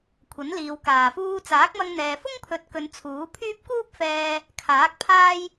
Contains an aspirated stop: yes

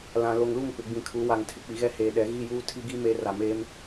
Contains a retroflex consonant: no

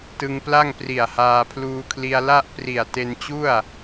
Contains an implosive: no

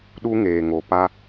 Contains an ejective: no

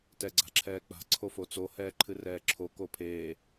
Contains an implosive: no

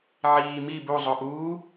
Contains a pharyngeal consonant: yes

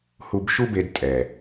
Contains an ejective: yes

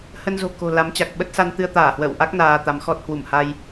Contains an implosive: yes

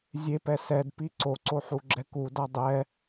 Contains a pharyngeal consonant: yes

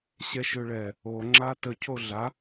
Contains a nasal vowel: no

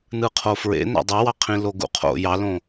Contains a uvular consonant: yes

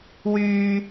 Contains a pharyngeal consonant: no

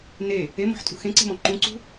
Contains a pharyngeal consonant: yes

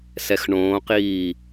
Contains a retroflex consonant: yes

